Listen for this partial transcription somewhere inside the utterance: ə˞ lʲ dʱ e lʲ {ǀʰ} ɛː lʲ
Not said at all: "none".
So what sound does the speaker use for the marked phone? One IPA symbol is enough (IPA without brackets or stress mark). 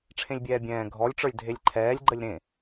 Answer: ǃʰ